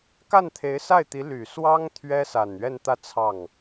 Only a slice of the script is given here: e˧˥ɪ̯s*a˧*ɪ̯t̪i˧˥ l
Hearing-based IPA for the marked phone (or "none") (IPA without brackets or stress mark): a˥˩